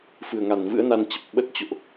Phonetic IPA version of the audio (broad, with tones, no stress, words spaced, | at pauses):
fɨ˨˩ə̯ŋa˨˩nvɨ̰˧˥ə̯na˧n t͡ɕə˨˩p̚ɓə˦˥t̚ t͡ɕo̰˧˨ʔ